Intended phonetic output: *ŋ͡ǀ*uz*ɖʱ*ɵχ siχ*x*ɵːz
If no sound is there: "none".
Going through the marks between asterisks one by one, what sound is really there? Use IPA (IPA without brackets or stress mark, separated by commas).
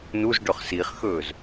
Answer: n, ɖ, x